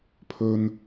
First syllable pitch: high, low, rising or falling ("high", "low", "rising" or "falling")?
low